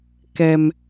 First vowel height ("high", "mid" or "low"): mid